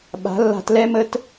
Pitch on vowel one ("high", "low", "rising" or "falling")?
rising